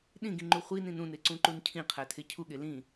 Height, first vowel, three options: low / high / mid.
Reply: high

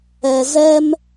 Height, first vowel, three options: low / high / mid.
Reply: mid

